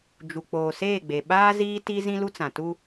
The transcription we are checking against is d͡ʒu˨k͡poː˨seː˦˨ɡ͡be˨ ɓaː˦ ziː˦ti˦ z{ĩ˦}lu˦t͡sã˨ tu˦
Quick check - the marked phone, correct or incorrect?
correct